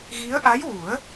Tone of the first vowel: rising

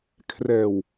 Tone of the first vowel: low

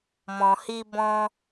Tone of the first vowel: low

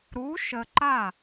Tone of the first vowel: rising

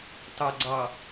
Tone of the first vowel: low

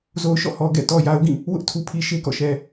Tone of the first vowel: low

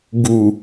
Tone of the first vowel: low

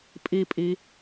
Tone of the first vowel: low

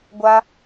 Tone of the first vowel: high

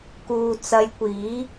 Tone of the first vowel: low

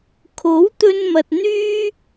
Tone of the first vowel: rising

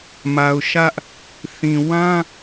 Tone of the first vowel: low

